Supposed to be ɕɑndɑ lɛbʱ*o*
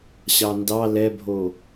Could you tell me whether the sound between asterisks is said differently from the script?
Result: no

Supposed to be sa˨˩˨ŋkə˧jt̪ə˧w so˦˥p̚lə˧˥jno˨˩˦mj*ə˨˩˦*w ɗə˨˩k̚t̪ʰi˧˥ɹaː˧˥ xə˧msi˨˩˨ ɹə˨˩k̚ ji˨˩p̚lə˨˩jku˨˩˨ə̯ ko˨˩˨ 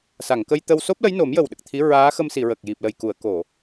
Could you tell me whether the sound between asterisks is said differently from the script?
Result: yes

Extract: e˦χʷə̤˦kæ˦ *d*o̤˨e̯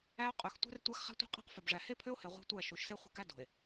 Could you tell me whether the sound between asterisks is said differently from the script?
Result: no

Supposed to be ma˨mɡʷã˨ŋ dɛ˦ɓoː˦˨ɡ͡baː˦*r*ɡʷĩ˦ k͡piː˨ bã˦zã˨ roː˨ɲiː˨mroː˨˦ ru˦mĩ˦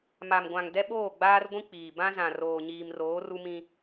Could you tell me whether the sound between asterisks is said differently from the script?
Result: no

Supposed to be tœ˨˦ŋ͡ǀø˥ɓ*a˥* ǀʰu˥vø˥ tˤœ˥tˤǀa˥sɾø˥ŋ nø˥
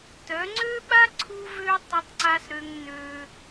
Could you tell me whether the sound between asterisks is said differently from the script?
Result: no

